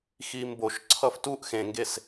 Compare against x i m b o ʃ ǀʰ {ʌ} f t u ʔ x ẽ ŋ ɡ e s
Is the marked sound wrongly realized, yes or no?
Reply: no